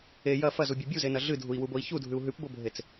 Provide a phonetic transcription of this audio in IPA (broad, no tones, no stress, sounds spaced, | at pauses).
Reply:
e j ɐ f ɐ z u bʲ u bʲ u z e n ɐ ɮ ɨ dʱ u i̯ w u b o i̯ ç u dʱ ʉ u̯ ɦ ʉ p b o bʱ e t͡s